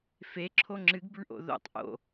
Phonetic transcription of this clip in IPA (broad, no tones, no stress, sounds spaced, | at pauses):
f e ǁʰ o ŋ͡ǁ ɨ ɡ b ʉ ɳ ʔ o̰ ð o̰ tˤ ʔ o̰